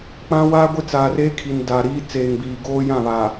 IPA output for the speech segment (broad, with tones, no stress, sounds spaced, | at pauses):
k͡p ã˦ w a˦ ɡʷ ɪ˦ t͡s aː˨ r eː˦ kʰ i˨ n d a˨ ɾ iː˦ t͡s eː˨ ŋ b iː˨ ɡ oː˦ j ã˦˨ β aː˨